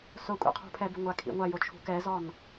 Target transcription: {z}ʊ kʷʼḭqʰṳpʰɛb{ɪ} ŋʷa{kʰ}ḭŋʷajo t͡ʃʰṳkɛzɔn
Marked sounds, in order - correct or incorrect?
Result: incorrect, correct, correct

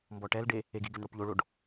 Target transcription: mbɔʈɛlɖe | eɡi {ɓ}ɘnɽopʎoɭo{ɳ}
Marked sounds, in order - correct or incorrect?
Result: incorrect, incorrect

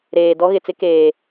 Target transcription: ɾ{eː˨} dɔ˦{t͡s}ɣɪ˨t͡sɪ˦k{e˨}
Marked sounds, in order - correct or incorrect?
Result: correct, incorrect, incorrect

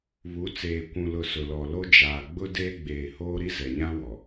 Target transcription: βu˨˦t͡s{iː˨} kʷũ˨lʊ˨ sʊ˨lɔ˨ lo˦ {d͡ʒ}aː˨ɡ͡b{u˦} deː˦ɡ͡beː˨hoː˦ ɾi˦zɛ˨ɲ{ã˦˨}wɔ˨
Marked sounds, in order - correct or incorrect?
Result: incorrect, correct, incorrect, incorrect

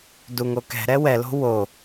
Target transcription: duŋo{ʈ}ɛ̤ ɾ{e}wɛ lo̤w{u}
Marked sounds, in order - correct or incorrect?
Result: incorrect, incorrect, incorrect

